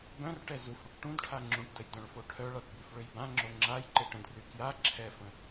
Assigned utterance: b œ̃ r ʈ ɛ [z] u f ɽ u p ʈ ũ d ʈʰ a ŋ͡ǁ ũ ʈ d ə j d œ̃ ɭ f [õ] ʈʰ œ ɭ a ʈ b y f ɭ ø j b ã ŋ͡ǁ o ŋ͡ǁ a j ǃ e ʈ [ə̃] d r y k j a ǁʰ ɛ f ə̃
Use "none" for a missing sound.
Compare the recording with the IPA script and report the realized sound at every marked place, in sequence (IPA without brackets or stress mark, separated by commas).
z, o, ə̃